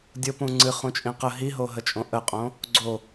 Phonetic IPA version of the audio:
dʲ o p ũ ŋ͡ǀ ɨ χ ũ t͡ʃʼ ĩ q ə ɦ i ɦ o ɦ ə t͡ʃʼ õ ʔ ə qʼ õ | ɡ͡ǀ o

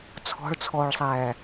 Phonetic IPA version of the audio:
t͡sʰ ɔ̤ ɭ t͡sʰ ɔː ɭ sˤ æː

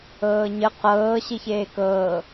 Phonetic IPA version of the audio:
ɤː ɲ ə q ɤː ɕ i ç eː k ɤː

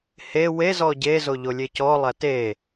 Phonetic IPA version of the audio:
h e w e z ɔ ɟ e z o ʎ o lʲ e c ɔ lˠ æ t e

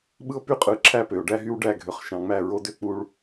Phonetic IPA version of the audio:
ɓ ɯ˦ o̯ p y˦ qʼ ɯ˨ ǁʰ æ˦ p ø˨ o̯ ɖ æ˦ ɦ y˦ w ɖ æ˦˨ ɡʱ ø˨ χ ʃ ɑ̃˨ ŋ͡m æ˦˨ ɹ o˦ d ø˦ k͡p u˦ ɭ

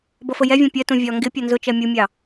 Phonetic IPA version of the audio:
b ʌ f ə j ɛ vʲ ɛ̃ pʲ ɜ t ũ vʲ ɒ ŋ ɡ ɪ pʲ ʌ n z ʊ t͡ʃ ɜ mʲ u mʲ ɑ

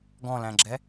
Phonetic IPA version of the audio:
ɡ ɔ̃ l æ̃ ɡ͡ǁ ɛ

